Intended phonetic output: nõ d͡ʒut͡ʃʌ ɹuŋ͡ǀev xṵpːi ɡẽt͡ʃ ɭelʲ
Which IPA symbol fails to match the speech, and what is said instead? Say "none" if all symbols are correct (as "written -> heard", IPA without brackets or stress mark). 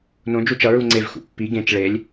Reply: none